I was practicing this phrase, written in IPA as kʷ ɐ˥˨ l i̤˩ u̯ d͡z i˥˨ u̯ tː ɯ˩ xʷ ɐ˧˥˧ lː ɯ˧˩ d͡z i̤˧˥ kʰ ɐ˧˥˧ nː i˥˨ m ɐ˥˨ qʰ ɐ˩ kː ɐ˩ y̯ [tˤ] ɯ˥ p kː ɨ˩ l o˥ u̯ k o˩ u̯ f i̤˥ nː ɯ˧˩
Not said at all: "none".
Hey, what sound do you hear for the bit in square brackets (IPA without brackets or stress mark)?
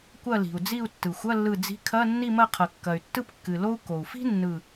tː